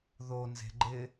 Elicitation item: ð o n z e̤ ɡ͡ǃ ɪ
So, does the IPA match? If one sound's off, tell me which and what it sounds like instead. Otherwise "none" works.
none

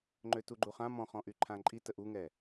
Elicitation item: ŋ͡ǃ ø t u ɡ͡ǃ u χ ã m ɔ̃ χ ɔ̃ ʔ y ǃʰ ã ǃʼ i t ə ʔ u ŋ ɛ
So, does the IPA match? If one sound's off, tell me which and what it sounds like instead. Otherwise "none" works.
none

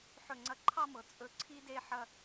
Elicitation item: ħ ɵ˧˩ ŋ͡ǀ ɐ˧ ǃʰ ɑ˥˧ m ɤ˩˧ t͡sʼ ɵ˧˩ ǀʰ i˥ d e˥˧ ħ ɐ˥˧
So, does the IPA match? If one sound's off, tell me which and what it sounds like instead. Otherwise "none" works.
none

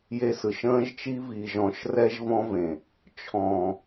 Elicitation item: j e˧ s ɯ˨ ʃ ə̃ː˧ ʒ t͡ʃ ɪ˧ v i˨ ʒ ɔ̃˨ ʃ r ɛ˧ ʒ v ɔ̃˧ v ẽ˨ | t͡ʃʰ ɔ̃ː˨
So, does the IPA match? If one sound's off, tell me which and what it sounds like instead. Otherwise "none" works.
ɪ˧ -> i˧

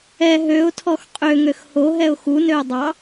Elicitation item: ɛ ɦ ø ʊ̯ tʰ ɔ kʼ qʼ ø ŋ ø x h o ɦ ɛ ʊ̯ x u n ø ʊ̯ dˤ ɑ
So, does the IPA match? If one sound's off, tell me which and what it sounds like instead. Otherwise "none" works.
kʼ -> x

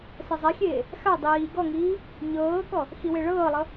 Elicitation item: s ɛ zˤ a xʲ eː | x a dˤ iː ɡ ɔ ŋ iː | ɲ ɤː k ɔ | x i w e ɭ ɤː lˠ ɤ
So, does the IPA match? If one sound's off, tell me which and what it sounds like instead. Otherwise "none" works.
none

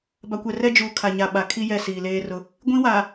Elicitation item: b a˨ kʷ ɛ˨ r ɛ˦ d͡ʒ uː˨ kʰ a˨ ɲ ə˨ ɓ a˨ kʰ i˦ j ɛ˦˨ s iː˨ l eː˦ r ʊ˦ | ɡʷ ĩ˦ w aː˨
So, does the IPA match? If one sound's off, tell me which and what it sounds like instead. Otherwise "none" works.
ə˨ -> a˨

